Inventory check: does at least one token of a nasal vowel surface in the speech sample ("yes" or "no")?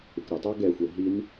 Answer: no